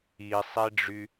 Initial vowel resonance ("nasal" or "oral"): oral